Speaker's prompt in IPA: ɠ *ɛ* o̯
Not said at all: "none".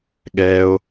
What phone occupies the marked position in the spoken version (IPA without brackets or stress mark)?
ɛ